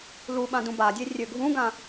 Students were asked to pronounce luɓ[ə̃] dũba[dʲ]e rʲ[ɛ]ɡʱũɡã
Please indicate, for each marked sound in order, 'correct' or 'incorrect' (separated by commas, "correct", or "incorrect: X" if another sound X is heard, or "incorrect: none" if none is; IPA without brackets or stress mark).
incorrect: ã, correct, incorrect: ø